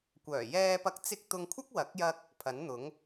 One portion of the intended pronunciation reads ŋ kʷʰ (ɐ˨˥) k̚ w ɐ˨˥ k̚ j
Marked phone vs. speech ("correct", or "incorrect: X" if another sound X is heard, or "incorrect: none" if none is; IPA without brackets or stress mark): incorrect: ɐ˥